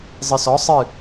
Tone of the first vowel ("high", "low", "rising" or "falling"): low